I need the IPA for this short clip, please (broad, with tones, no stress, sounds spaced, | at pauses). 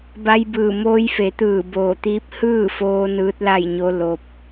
b a˧ j b ɯː˧˩ m oː˧ j f e˩˧ t̪ ɯː˧˩ b oː˧˩ t̪ iː˧˥ p̚ h ɯː˥˨ f oː˧ n ɯː˧˥ t̚ l a˥˨ j ɲ o˧˥ l o˧ p̚